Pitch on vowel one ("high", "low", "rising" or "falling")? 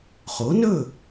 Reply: rising